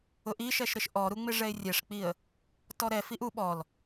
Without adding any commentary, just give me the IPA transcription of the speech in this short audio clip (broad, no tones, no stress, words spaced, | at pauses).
ʊʔ iʃɛʃɾɪʃ ʔɔɾuŋ͡mɪ ʐɛɪ̯rʲɛʂk͡piə̯ | tɔɾɛ fiʔu ɓɔl